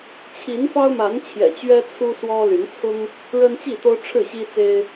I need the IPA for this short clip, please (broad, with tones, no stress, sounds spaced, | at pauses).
t͡ɕʰ i˨˦ n f ɑ˦ ʊ̯ m a˨˦ n t͡ɕʰ j ɛ̰˨˩ t͡ɕ ɥ ɛ˦ t͡sʰ u˦ s w ɔ˦ l y˨˦ n t͡sʰ ʊ˦ ŋ | ɻ ə˦ n t͡ɕ i˥˨ t̪ o˦ ʊ̯ ʈ͡ʂʰ ɻ̩˥˨ ɕ i˦ t͡s e˦ ɪ̯